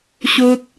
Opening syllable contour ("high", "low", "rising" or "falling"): high